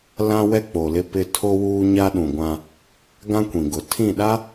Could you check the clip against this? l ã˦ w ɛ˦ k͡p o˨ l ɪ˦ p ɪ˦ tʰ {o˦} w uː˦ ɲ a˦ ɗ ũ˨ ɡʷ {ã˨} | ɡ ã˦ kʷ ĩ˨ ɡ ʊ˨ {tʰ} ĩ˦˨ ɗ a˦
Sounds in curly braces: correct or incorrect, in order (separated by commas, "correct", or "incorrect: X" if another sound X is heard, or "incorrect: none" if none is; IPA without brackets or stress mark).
correct, incorrect: ã˦, correct